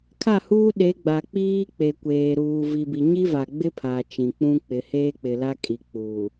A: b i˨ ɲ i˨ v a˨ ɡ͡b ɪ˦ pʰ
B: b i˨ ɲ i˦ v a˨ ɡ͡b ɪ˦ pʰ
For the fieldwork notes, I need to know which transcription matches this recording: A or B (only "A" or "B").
B